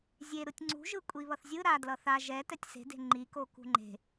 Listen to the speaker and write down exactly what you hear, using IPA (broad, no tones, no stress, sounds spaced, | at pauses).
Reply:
zʲ e ɾ ɯ tʲ ŋ͡ǀ ṳ ʒ ɯ kʷʼ i β ʌ θ zʲ ɯ ɾ a d l ʌ θ a ʒ ɛ t ɛ tʲ s e̤ d e̤ ŋ͡ǃ i k o k ṳ ŋ͡ǃ e̤